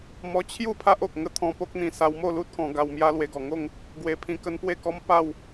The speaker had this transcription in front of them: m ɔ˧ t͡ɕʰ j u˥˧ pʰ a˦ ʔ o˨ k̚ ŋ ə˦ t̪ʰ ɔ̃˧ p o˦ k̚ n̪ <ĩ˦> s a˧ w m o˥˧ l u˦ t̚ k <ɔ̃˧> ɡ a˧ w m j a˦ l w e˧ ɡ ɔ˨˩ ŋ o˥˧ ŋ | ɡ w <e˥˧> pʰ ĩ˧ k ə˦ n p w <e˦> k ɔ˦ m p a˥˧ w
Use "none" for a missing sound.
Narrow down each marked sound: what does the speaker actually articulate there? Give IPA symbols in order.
ĩ˧, ɔ̃˧, e˧, e˥˧

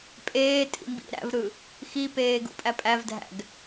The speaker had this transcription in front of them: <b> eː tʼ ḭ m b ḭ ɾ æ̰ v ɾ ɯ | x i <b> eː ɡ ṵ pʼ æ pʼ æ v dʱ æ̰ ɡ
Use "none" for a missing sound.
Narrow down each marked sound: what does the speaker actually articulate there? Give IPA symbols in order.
pʼ, p

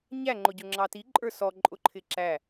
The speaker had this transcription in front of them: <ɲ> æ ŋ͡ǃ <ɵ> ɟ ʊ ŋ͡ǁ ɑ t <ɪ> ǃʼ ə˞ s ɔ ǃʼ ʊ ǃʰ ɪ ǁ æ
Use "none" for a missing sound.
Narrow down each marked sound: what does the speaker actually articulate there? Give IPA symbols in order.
ɲ, ʊ, i

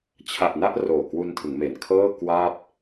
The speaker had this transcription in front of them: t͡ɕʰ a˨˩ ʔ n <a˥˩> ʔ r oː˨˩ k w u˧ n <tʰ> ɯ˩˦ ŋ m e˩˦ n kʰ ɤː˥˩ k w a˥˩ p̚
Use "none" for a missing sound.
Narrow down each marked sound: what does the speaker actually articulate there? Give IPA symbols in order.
a˥˩, tʰ

